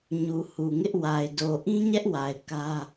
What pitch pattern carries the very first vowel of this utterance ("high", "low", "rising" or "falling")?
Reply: low